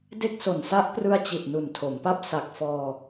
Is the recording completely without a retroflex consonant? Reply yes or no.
yes